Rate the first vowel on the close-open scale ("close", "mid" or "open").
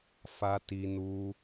open